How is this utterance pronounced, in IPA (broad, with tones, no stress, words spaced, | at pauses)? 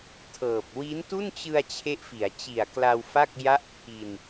tʰɤː˨˩p̚ wi˦˥ntu˥˩nt͡ɕɯ˧a̯ t͡ɕʰe˦˥ʔfi˩˦a̯t͡ɕi˨˩a̯kla˧w fa˥˩k̚ ja˥˩ʔpʰi˧n